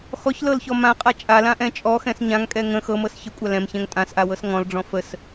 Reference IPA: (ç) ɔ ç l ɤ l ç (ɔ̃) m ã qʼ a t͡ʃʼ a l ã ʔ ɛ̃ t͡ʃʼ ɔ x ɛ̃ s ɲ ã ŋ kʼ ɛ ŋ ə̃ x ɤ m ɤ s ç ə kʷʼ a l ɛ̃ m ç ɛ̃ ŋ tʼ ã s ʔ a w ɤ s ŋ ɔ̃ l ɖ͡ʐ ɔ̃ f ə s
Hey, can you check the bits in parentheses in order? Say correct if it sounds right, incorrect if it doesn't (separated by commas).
incorrect, incorrect